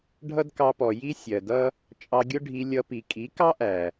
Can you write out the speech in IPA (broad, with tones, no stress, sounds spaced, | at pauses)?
ɖʱ ʌ˦ d k ɑ˧ p ɔ˨ j i˦ sʲ ɜ˨ d ʌ˦ | t͡ʃʼ ɑ˧ ɡʲ ʊ˦ ɖʱ i˧ lʲ ʌ˧ p i˨ kʼ i˨˦ k ɑ˦ ʔ æ˨